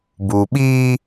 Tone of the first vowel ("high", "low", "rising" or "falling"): low